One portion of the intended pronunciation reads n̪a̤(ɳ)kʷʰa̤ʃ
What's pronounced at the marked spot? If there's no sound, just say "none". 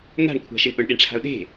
ɳ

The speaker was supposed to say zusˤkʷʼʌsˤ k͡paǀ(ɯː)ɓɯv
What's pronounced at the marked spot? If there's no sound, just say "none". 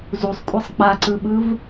ɯ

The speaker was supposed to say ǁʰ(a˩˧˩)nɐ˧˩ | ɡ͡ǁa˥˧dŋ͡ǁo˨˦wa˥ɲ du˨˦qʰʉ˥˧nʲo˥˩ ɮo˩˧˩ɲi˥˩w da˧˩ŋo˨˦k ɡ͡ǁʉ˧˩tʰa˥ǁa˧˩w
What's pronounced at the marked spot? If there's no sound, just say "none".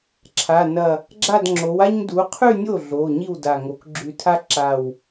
a˩˧˩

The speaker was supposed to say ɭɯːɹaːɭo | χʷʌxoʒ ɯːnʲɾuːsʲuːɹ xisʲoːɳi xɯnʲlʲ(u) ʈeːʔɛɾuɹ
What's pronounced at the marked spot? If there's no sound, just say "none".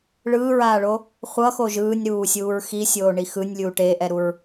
uː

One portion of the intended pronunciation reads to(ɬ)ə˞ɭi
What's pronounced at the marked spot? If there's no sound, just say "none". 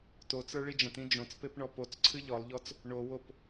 t͡s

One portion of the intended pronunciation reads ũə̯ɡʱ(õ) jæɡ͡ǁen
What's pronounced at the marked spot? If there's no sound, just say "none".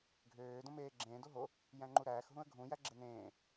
ũ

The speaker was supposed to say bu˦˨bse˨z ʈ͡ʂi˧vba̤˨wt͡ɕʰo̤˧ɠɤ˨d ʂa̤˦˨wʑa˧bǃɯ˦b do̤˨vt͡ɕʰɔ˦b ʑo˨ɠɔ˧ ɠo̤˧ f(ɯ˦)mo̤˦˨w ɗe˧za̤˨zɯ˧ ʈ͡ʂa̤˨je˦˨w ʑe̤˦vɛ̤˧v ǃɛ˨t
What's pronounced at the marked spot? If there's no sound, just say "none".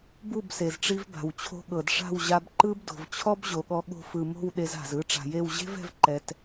ɯ˨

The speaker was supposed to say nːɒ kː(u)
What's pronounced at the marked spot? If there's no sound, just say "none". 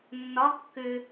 ʏ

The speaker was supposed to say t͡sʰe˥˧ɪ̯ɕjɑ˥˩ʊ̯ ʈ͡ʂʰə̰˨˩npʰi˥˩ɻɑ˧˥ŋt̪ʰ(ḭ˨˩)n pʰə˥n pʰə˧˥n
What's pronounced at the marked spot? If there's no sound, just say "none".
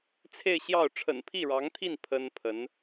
i˥˩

